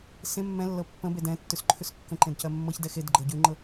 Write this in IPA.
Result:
sẽ mːɛ̃lːɤ pːə̃ bedɛ̃tːʉs ǃʰʉskːə̃ǃẽd cɜmːɤçdɛ xedɡ͡ǃɤ ɟʉŋ͡ǃɤ

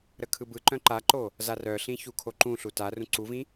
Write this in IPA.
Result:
ɾəkʰɯbɯǃœ̃ ǃaǃo | zarœɬĩ çukʰoǃũɬu tarũ ǀuvĩ

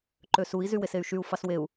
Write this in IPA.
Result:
ǃøsui̯ zywesey̯ʃyu̯ fɑsweu̯

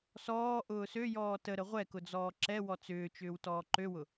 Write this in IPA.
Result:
sɔː ʔʊːsøjɔː təɾə ʁʷɛkʊ d͡zɔːǁɛwɔ t͡sʏːt͡ʃʏːw tɔːǃøwʊ

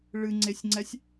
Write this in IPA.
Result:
ɭɨŋ͡ǀesʲŋ͡ǀɛsʲ

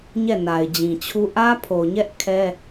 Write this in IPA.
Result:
ɲɛ˦˨na˨ɪ̯d͡ʑĩ˨t͡ɕʰu˦ ʔä˦pʰo˨ɲɛ˦ʔ kʰɛ˦

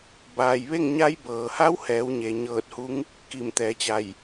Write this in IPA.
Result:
baː˩jʋe˥˨ŋɲa˧˥j bɤː˩ha˧˥whɛː˩˧w ɲe˩ɲɤː˧˩t̚hu˧˥ŋ | ki˧˩mt̪ɛː˩˧t͡ɕa˧˩j

